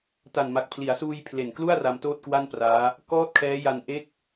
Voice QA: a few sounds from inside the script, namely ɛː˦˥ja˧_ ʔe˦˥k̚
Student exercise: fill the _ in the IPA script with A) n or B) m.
A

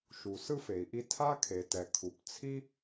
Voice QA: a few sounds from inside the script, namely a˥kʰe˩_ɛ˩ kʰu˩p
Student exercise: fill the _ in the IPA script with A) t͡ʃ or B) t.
B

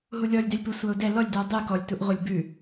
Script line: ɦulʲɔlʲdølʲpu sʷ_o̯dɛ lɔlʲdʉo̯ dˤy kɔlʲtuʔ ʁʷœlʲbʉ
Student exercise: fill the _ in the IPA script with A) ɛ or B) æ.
B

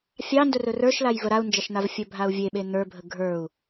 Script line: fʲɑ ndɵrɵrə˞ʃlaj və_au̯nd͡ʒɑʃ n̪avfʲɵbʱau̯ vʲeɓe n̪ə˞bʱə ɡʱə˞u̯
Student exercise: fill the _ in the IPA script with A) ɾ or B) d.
A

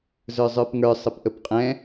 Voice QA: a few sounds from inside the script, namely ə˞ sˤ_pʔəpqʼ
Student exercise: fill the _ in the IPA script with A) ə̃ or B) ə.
B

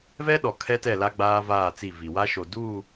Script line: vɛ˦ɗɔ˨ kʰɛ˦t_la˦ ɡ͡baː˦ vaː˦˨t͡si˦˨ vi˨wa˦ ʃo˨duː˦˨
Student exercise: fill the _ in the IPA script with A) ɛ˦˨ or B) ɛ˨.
A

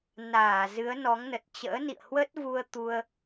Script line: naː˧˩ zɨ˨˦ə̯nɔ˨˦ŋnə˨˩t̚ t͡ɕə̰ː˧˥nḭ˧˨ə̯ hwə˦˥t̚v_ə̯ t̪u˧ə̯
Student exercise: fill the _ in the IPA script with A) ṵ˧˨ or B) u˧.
B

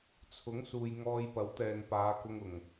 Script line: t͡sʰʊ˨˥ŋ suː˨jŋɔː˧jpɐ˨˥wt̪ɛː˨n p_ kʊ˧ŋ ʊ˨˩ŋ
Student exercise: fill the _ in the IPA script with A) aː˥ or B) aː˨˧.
B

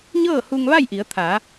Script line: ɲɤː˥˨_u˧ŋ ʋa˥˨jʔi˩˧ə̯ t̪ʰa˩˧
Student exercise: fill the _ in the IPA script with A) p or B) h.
B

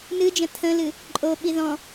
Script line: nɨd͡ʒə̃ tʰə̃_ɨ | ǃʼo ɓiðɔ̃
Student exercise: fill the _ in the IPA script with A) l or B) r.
A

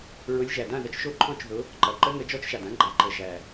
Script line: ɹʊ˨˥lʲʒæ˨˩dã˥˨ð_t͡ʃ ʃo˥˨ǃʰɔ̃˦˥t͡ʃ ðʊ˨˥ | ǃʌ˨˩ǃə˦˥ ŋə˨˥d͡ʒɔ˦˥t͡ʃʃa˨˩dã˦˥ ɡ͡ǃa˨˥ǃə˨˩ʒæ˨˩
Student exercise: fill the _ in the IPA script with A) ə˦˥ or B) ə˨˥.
B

